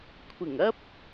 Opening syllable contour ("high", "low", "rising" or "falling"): low